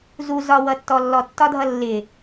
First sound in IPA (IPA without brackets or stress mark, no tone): z